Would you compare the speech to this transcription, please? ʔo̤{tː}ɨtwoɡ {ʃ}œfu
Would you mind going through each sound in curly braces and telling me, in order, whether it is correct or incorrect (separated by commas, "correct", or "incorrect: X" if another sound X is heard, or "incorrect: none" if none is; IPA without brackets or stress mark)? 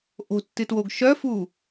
correct, correct